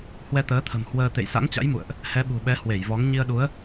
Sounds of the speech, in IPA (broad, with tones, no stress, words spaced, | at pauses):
hwɛ˧t̪əː˨˦t̪ʰə̤˨˩m hwəː˧ t̪ḛ˧˨jsa̰˧˥ŋt͡ɕa̰˧˥jmṵ˧˨ə̯ʔ | hɛ˨˦ɓṳ˨˩ɓɛ˨˦ hwe˧˩jvɔ˨˦ŋ ɲi˧ə̯ɗu˨˦ə̯